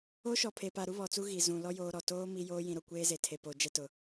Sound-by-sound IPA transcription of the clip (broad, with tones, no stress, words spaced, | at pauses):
o˦ʃɔ˨ pʰe˨pa˨ɾu˦ βɔ˨t͡su˦ ɣi˨ zũ˨lɔ˦ joː˦ɾɔ˨ toː˦ mi˦joː˦ jĩ˨ɾo˨kʷeː˦ ze˨ tʰe˨poː˨ d͡ʒɛ˦tʊ˨